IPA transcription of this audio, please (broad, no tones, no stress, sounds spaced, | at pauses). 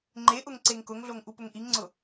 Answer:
ŋ͡ǃ e ʔ ʊ ŋ ǀ e ŋ k ʊ ŋ ɮ o ŋ ʔ u p ʊ ŋ ʔ i ŋ ŋ͡ǀ ʊ